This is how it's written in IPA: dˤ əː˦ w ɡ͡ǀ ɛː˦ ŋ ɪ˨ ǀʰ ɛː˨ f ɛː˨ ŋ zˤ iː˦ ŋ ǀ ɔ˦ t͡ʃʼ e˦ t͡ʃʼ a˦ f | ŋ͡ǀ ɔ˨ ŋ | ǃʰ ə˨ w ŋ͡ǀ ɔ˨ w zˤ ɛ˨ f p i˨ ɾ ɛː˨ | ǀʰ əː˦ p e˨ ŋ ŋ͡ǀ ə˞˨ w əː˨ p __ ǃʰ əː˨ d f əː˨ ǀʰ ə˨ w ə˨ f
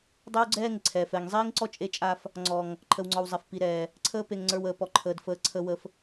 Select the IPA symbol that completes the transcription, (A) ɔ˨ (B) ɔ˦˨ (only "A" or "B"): A